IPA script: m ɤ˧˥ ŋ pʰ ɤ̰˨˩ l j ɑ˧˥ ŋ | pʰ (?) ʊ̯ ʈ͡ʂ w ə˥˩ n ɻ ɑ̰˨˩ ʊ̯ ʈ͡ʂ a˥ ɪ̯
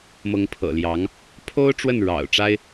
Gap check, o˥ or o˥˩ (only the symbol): o˥